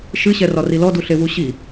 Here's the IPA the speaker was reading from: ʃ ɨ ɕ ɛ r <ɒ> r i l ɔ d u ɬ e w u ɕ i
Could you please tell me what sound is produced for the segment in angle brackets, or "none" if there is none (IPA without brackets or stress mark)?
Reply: ɒ